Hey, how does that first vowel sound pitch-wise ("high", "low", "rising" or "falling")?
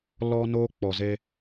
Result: high